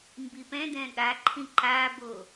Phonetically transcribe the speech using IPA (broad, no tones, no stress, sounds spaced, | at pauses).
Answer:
m b i p ɛ̃ d ɛ̃ ɠ a ǃʰ ĩ ǃ a b o